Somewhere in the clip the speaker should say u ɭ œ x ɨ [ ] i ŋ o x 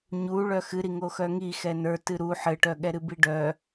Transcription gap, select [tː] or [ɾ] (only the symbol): ɾ